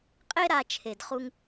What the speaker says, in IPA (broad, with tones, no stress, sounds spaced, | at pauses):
qʼ e˥ ɾ a˧ t͡ʃʰ e˧ d χ u˥ ŋ